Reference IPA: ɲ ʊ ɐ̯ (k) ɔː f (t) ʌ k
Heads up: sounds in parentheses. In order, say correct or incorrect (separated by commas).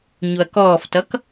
correct, correct